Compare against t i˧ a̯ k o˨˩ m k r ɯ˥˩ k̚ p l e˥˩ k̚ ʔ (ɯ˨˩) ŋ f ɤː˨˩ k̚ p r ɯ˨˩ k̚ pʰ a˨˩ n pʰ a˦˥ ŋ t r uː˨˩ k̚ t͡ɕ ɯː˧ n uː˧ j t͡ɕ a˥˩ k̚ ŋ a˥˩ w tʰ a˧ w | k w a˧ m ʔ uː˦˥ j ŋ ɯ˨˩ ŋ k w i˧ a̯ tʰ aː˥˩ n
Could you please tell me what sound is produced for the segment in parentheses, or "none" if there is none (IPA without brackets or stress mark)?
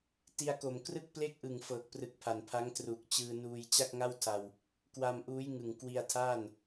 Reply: ɯ˨˩